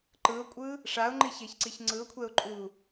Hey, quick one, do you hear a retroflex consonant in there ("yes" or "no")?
yes